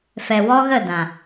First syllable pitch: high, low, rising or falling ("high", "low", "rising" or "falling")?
low